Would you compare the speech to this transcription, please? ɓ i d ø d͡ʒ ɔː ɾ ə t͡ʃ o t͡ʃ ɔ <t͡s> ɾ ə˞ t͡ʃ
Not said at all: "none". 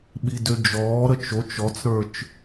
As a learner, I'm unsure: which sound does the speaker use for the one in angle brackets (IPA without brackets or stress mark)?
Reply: t͡s